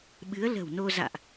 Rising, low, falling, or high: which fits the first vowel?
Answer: rising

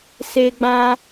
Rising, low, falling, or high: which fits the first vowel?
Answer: high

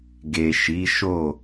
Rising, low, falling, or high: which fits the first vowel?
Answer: low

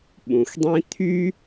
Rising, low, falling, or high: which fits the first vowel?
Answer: low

